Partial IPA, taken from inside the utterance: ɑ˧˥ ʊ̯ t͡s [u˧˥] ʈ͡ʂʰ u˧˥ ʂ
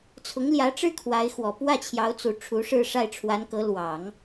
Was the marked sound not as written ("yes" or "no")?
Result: yes